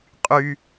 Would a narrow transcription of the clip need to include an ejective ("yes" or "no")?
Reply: yes